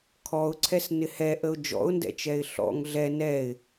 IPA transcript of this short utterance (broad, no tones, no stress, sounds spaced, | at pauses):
kʰ ɔ ʊ̯ ǀʰ ɛ s n ɪ h ɛ ʔ ə ʊ̯ d͡ʒ ɔ̰ ʊ̯ n d ɛ̰ t͡ʃ ɛ ɪ̯ ɬ ɔ̰ ŋ ɮ ɛ n ɛ ɪ̯